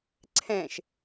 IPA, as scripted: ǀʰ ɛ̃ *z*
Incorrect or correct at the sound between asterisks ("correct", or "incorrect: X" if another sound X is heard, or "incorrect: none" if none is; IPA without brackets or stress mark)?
incorrect: ʃ